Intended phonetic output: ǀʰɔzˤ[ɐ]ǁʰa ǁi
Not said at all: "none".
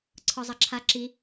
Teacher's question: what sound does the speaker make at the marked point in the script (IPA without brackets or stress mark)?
ɐ